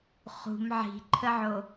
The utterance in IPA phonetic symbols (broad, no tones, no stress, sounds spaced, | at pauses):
χ ṳ m ʕ i̤ ǃʰ ə ʕ o